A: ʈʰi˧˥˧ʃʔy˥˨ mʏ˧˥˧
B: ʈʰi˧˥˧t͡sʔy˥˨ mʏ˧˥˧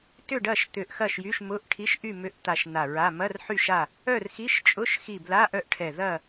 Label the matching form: A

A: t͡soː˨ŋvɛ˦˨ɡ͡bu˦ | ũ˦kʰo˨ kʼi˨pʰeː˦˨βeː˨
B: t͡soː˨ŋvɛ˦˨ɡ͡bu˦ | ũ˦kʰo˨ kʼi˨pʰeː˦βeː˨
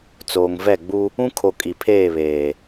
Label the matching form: A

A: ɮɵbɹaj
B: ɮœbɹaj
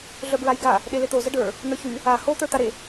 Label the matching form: B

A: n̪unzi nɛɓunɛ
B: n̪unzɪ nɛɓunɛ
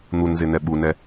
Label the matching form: B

